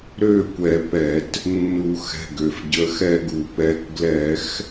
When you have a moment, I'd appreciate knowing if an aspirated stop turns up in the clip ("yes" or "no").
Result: no